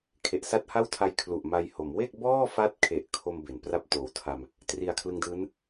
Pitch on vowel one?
low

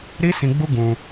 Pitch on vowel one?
high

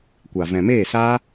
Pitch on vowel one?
low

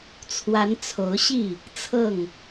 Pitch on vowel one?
rising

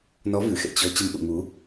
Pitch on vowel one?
rising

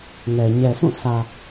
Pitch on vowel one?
low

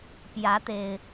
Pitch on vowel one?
rising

